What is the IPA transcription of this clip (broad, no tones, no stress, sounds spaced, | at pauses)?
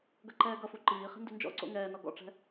ɡ ɐ ǃ ɛː ɡ ʌ f u ǃ iː χ i̤ n d ʉ n d͡ʒ ɔ̰ ǀ o̰ ŋ ɛː n ɔ ɡ ɔ̰ ʈ͡ʂ ɛ̤